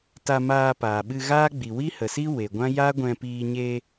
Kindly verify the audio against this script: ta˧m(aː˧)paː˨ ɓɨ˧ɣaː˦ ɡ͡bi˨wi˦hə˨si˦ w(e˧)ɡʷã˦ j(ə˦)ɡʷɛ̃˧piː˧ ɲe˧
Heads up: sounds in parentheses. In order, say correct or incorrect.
correct, incorrect: e˨, incorrect: a˦

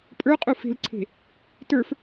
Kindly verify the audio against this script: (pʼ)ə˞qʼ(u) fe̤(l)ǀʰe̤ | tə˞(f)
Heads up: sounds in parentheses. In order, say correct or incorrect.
correct, correct, correct, correct

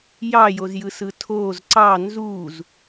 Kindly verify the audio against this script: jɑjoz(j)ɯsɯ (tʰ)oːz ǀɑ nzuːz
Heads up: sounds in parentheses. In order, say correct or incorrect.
correct, correct

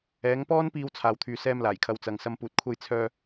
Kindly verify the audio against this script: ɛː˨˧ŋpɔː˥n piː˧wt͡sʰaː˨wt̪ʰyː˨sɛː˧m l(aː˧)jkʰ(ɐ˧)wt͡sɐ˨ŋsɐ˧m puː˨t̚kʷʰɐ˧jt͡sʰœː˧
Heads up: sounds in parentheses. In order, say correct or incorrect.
incorrect: aː˨˩, incorrect: ɐ˨˧

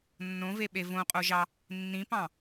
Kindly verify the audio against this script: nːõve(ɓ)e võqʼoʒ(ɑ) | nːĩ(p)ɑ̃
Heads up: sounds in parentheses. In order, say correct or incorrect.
correct, correct, correct

